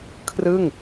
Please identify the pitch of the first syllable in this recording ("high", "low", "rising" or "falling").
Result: falling